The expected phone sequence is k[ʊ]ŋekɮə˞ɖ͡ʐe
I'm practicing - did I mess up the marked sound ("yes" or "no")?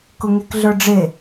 no